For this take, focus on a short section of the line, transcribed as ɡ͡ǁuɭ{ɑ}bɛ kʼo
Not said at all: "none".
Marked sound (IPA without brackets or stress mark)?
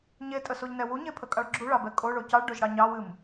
ɑ